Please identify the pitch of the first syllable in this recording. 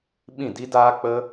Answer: falling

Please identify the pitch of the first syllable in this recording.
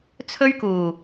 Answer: high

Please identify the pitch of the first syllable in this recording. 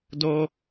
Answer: high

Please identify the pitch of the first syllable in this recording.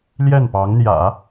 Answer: falling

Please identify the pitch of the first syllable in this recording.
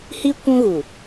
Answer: high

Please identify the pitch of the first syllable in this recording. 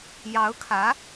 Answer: rising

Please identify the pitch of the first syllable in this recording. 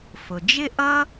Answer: low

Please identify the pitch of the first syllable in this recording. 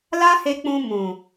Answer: high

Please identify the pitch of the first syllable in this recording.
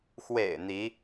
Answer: low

